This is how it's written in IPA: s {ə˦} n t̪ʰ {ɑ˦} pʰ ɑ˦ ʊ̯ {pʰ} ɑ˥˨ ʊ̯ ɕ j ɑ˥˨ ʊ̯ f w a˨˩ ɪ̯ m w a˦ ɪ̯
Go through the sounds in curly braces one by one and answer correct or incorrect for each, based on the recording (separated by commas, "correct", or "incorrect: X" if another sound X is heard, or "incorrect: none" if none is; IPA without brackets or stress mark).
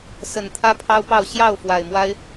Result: incorrect: ə˨˩, incorrect: ä˦, incorrect: p